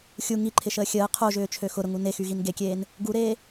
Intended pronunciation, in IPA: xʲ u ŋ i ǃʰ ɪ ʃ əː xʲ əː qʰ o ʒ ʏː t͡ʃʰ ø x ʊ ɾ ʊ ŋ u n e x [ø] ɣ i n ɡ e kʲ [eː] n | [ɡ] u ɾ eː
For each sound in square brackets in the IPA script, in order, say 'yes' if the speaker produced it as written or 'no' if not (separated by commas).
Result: no, yes, yes